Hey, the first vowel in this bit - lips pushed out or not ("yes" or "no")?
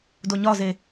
yes